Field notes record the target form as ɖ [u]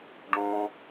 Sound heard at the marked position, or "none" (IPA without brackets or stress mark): ũ